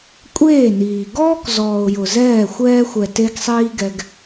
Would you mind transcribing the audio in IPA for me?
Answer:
kʷʼ eː˦˨ n iː˨ ɡ ɔː˦ k z ɔː˨ ʊ̯ j ʊ˨ z ɛː˦˨ xʷ ɛː˧ xʷ ɛ˨ t e˧ ɡ sˤ iː˧ ɡ ɛ˧ ɡ

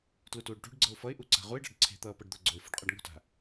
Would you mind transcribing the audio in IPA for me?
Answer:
t l u t uː ɖ ʈ ṳ ɖ ɡ͡ǀ ɤ ʊ̯ f ʌ ɪ̯ ʔ u ǀ a̤ ʁ u ɪ̯ ɖ a̤ ɖ ǀʰ e̤ t̪ ʌː p ɤ ɖ d̪ ʊ ɡ͡ǀ o ɪ̯ f ṳ ɖ qʼ ɤ ɖ ŋ o̤ t a̤

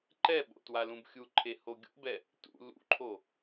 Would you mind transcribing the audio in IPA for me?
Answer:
ǃ ɛ ɓ o̰ t w a l ũ b xʲ u ǃʰ e h o ɡʲ o̰ b ɛ | t ṵ l ṵ ǃʰ o

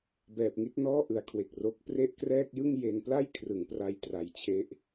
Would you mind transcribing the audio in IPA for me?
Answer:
b ɛː˨˩ p̚ ŋ i˦˥ t̚ n ɔː˥˩ ʔ ɯ˨˩ a̯ kʰ w e˨˩ k̚ r o˦˥ k̚ p r e˥˩ ʔ k r ɛː˥˩ k̚ j ɯ˥˩ ŋ j e˧ n p l a˥˩ j kʰ r ɯ˩˦ ŋ p r a˧ j t r a˨˩ j t͡ɕʰ e˦˥ ʔ

